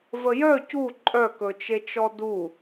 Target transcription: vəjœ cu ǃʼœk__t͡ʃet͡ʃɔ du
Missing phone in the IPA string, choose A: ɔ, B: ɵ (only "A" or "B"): B